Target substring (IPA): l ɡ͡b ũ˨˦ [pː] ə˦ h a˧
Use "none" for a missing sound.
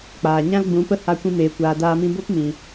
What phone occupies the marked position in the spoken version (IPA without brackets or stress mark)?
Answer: p